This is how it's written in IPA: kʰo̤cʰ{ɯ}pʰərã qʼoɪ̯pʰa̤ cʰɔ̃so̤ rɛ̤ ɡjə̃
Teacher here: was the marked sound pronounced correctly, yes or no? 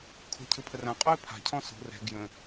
yes